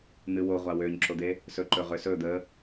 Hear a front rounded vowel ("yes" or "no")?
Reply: yes